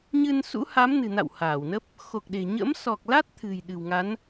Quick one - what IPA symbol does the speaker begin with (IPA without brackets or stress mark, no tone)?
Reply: ɲ